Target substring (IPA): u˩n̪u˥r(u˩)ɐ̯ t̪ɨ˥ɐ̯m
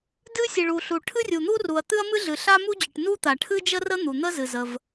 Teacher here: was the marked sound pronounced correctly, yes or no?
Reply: yes